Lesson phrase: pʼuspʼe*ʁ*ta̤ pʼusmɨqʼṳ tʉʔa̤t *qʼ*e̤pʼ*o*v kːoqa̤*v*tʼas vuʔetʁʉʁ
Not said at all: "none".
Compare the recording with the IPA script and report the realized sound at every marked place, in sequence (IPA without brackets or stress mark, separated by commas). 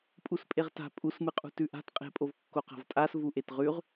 ʁ, qʼ, o, v